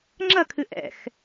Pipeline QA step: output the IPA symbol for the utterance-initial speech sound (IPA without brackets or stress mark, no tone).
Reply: ŋ͡ǁ